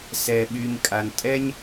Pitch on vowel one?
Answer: low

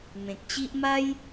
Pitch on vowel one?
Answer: low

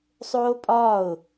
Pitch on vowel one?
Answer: high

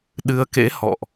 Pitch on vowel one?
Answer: rising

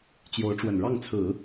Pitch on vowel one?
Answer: rising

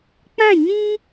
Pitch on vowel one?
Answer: falling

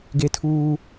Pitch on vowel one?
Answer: high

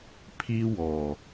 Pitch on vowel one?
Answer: high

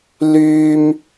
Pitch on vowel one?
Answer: high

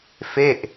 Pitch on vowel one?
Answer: falling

